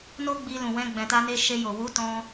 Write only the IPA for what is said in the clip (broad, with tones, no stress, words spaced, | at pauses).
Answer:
no˦ɡ͡bi˧ lũ˨wɛ̃˧ ɡ͡bɛ̃˨ta˧ne˧ ʃe˧ jo˨ wu˨˦tɔ̃˧